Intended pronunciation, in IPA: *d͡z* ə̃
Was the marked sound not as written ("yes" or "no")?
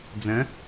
no